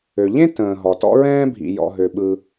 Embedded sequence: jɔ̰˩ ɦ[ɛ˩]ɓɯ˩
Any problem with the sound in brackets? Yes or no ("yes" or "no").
yes